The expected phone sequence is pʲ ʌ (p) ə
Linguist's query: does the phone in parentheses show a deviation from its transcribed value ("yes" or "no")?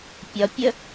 yes